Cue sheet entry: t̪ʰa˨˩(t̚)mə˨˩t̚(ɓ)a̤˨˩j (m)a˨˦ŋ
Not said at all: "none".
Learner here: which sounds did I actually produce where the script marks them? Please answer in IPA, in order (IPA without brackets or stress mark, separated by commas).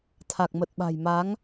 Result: k̚, ɓ, m